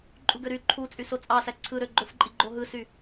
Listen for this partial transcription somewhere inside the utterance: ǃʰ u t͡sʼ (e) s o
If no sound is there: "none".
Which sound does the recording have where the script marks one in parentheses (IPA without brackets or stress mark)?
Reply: y